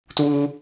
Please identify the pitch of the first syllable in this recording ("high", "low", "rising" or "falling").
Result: high